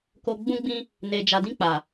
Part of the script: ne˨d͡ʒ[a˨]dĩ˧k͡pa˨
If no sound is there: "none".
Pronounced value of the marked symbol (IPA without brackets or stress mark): a˨